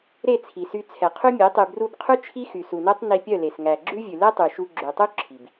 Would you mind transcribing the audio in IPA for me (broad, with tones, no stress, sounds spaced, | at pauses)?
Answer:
ɾ e˦˨ t͡sʰ i˨ s y˧ t͡sʰ ɛ˨ qʰ y˦ mʲ e˨˦ tˤ y˨ b r u˧ b qʰ ʉ˦ t͡ʃʰ i˦ x y˨ s u˨ n œ˦ tˤ n i˧ pʲ œ˦˨ l e˨ s ŋ æ˨ ɡ͡ǁ ʉ˦ vʲ ʉ˨ l ɛ˦ tˤ y˨ ʃ u˧ ɡ͡ǁ ø˨ tˤ u˦ ǁʰ i˨ b